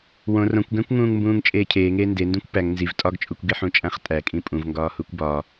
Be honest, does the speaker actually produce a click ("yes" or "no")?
no